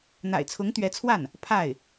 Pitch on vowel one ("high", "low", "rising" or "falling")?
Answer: low